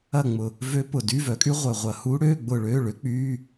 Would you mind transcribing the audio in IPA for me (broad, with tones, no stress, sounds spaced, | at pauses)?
ɐ˦˨ ŋ͡m ʊ˨˩ | v ø˦˥ p ʊ˨˩ d y˧˥˧ v œ˩˥ kʼ y˦˥ ʁʷ œ˨˩ ʁʷ ɐ˨˩ h u˦˥ ɽ øː˧˥˧ ɡ͡b ʊ˦˨ ɭ øː˧˥˧ ɭ ø˩˥ k͡p yː˧˥˧